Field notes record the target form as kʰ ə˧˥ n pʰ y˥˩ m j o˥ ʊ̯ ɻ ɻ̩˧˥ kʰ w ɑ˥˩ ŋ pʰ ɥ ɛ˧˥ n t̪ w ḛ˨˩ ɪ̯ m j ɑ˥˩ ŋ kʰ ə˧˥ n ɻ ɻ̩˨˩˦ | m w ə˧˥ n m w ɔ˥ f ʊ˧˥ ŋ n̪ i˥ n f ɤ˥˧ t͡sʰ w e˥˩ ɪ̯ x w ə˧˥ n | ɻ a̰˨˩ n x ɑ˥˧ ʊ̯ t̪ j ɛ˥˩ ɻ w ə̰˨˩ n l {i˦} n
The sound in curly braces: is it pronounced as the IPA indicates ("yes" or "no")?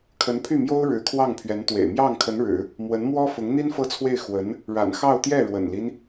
yes